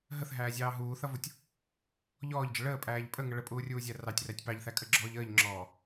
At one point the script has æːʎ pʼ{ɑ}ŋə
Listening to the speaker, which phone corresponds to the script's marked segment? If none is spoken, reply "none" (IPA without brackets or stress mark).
ə